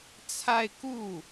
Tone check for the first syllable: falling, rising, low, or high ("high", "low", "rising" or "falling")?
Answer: falling